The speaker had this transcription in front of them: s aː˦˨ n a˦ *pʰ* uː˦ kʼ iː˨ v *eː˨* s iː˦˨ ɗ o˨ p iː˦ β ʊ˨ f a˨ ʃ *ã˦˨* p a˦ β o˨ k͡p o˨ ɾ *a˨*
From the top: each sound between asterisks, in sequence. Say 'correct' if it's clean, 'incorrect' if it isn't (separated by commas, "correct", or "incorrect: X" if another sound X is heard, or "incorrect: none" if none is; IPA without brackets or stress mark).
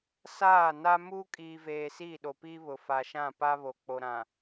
incorrect: m, correct, correct, incorrect: ã˨